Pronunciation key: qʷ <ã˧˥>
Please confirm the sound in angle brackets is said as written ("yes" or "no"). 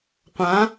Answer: yes